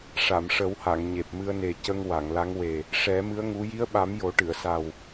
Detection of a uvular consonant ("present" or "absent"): absent